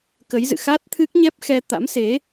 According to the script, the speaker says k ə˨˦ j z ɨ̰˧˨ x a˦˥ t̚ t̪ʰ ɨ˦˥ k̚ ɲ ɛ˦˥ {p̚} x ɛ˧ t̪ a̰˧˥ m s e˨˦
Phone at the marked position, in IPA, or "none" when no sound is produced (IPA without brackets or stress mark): p̚